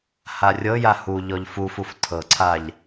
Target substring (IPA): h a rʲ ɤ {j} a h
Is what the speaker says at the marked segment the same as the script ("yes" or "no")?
yes